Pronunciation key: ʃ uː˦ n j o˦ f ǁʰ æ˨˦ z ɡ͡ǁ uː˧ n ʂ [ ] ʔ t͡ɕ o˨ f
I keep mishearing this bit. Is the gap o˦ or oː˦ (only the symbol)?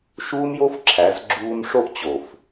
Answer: o˦